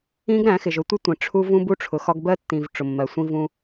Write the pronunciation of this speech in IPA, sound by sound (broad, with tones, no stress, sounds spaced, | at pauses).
ĩ˦ ɡ ɾ æ̃˨˦ x ɪ˨ ʒ ʊ˦ tʷ ɪ˦ tʷ ĩ˨ ʈ͡ʂʰ u˦ v ũ˦ b u˦ ʈ͡ʂʰ ʊ˨ x ɒ˦ ɡ b ɜ˦ tː ĩ˨ v ʈ͡ʂ ʊ˨ mː ɜ˨ sʷ ĩ˦ v ũ˦